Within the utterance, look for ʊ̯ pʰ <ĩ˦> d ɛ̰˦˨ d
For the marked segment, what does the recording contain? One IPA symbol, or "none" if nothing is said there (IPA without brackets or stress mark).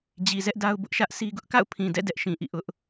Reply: ĩ˨